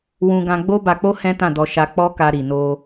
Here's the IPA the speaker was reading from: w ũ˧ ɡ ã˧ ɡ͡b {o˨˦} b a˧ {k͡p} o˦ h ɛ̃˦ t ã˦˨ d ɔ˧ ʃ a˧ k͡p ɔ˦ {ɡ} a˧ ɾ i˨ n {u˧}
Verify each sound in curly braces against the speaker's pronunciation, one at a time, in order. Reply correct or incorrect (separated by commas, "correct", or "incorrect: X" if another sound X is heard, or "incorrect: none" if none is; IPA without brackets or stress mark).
incorrect: o˦, correct, incorrect: k, incorrect: o˧